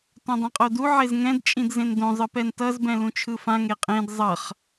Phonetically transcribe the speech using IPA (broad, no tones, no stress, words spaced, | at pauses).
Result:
tõdˤẽqʼodu ʕezŋɛ̃d t͡ʃʼĩdzẽndõ zˤɯpɛntʌz bɛ̃lũt͡ʃʰɯfã ŋeqʼẽd zˤʌχ